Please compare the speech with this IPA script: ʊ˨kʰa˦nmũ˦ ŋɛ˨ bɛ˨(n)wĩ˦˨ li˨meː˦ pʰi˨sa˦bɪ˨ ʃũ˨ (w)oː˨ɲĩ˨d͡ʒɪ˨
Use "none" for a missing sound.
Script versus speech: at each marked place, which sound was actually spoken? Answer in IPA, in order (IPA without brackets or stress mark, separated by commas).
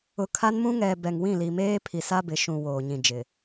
ŋ, w